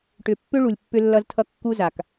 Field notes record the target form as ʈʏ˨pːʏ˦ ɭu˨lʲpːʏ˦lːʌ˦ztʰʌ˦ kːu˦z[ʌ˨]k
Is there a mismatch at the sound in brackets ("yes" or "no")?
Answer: yes